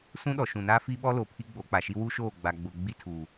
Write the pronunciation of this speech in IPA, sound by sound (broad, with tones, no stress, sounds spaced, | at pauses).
s ũ˦ ɗ ɔ˨ ʃ ũ˨ n aː˦ f iː˦ ɓ ɔ˦ l o˨ pʰ i˦ ɡ͡b o˨˦ k͡p a˨ ʃ i˦ w u˦ ʃ oː˦˨ ɡ͡b a˨ ɡ͡b ʊ˨ ɡ͡b i˦ tʰ u˨